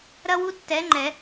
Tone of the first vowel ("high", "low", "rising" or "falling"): high